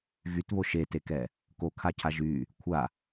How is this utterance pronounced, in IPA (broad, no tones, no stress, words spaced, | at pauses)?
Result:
ɣytβo ʃetekɛ | kokʰacʰa ʒy | kʷʰa